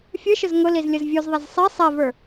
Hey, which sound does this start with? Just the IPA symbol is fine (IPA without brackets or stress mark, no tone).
fʲ